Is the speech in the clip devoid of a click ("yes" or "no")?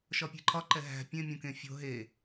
no